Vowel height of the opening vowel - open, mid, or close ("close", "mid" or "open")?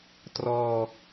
mid